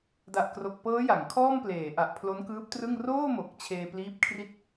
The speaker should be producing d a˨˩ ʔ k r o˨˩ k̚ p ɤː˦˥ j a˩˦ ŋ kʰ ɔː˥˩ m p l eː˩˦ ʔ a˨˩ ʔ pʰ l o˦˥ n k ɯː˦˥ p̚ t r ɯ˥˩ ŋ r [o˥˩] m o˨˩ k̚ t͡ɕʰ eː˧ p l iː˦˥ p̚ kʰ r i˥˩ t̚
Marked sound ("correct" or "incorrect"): incorrect